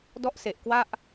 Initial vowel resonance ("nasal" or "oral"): oral